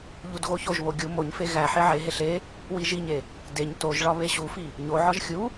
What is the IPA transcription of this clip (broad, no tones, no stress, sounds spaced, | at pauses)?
ʎ u d ɣ o ç o ʒ β o ɡʲ u m o ɲ f e ɣ æ ħ e ʕ e ɦ e ɬ e | w i ʒ i ɲ e | d e ɲ t o ʒ ɭ ɒ β e ɕ u f i | ɲ o ʕ ɒ ʒ xʲ u